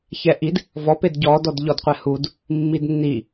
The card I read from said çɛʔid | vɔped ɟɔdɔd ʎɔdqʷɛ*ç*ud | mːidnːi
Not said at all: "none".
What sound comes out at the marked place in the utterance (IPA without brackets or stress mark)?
h